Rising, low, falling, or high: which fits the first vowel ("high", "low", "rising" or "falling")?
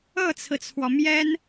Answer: falling